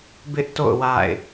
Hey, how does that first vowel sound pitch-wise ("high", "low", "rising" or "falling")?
high